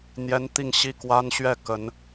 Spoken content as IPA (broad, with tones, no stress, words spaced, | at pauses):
n̪jɛ˥n t̪i˥˧ŋɕi˥˩kwa˥n ɕɥɛ˥˩ kə˧˥n